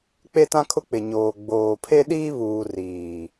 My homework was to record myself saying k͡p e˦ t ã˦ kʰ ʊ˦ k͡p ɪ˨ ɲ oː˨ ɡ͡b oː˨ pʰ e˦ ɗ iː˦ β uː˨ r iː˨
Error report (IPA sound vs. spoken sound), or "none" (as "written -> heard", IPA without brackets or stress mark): none